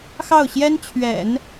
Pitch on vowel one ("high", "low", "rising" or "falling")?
falling